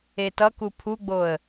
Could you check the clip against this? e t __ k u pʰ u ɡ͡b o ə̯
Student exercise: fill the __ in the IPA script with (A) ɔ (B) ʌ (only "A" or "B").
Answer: B